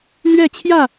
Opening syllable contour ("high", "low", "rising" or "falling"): falling